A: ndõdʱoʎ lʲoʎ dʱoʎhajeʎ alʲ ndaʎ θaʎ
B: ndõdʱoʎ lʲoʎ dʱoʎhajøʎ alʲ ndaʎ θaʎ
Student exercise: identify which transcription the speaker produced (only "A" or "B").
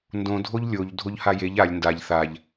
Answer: A